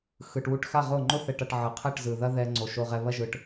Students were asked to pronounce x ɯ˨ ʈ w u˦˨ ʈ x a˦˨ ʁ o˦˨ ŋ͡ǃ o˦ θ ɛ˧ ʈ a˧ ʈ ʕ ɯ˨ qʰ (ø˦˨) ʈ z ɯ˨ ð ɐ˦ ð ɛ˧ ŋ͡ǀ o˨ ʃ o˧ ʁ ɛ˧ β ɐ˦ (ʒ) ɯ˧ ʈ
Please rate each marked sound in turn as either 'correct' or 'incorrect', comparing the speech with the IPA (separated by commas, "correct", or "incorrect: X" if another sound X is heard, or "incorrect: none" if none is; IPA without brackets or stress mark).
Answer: incorrect: ɛ˦˨, correct